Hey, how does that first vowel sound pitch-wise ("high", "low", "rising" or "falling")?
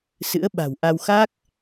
rising